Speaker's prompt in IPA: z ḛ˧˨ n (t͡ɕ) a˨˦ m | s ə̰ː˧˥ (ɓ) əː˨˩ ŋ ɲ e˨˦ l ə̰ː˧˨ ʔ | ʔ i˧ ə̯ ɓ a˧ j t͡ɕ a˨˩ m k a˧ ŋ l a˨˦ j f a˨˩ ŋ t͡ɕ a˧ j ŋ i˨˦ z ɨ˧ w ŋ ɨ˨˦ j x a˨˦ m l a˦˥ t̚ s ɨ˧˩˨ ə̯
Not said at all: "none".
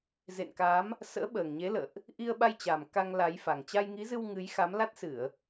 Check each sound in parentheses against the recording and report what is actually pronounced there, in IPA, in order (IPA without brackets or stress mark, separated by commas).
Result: k, ɓ